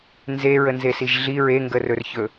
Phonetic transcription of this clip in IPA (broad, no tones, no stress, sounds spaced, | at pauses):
n z e ɹ ə n z e s i ʒ ɮ i ɹ e ŋ ɡ ə r ɵ r ç ɵ